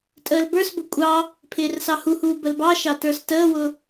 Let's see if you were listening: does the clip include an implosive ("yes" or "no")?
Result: no